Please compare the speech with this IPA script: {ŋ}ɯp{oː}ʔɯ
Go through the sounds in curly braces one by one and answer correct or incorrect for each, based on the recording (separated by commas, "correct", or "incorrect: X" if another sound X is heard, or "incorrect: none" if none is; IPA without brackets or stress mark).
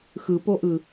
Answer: incorrect: x, incorrect: o